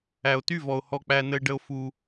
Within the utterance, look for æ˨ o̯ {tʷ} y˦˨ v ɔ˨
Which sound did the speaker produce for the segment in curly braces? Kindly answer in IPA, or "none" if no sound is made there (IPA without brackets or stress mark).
t